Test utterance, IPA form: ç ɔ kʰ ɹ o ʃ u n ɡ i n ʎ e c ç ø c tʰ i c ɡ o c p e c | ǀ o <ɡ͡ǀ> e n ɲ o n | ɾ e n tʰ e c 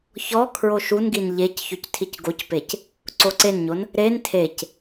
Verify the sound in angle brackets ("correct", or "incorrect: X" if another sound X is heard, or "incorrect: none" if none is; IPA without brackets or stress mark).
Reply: incorrect: ǀ